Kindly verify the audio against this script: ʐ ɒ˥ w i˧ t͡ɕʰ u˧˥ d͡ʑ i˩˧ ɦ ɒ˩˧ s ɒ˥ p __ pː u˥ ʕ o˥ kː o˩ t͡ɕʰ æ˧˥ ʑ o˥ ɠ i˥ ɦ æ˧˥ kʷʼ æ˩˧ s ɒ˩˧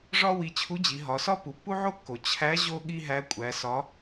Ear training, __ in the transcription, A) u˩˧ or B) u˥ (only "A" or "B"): A